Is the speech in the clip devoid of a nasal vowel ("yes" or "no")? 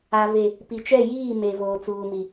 yes